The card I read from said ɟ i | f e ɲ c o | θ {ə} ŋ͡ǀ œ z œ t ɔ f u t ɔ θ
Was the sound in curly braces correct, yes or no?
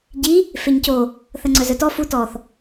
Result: yes